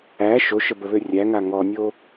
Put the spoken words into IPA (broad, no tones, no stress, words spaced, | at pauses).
æ ʃoʃəbəβø rʲæŋa ŋɔnʲo